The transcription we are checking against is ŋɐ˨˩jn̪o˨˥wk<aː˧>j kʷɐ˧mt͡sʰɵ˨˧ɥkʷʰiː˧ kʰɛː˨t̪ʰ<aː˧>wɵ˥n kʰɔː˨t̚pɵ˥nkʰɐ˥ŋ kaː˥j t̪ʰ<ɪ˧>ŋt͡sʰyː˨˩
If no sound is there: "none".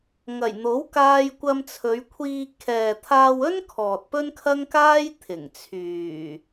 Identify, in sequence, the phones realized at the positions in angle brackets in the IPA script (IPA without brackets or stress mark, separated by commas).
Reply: aː˧, aː˧, ɪ˨˩